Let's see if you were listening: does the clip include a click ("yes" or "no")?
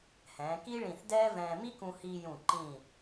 yes